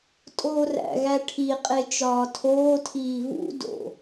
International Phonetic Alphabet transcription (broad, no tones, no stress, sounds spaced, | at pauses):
tʼ oː r æ̰ ɣ æ ʈʰ i qʼ e t͡ʃ ɒː tʰ oː tʰ iː v ṵ d o̰